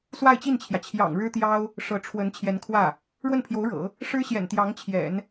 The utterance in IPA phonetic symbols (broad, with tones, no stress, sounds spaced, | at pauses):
s w a˥˧ ɪ̯ t͡ɕ i˥˩ n t͡ɕʰ j ä˩ t͡ɕʰ j ɑ̰˨˩ ŋ ɻ ɻ̩˥ t̪ j ɑ˥ ʊ̯ | ʂ ɤ˧˥ ʈ͡ʂʰ w ə˧˥ n t͡ɕʰ j ɛ˧˥ n kʰ w ä˥˩ | ɻ w ə˥˩ n pʰ j o˧˥ ʊ̯ ɻ ɤ̰˨˩˦ | ʂ ɻ̩˥ ɕ j ɛ̰˨˩ n t̪ j ɑ˧˥ ŋ t͡ɕʰ j ɛ̰˨˩˦ n